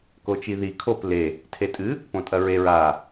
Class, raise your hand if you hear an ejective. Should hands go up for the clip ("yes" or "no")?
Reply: yes